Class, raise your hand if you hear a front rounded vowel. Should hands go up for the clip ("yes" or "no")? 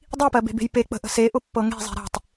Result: no